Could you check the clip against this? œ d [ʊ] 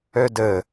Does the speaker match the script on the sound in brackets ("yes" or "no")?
no